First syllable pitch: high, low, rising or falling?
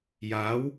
rising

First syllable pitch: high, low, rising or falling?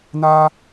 high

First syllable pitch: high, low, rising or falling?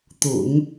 low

